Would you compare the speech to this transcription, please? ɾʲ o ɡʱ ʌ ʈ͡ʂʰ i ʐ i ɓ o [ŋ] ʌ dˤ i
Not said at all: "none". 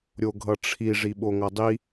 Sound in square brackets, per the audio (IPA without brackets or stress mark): ŋ